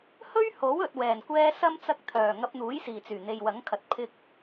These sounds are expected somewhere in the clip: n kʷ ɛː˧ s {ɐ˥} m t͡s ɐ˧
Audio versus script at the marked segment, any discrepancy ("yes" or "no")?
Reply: no